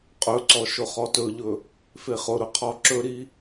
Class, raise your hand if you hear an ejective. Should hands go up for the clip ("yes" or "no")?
yes